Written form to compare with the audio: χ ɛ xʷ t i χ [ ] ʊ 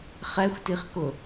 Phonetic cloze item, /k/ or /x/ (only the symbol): k